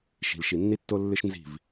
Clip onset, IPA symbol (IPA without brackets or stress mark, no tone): ʃ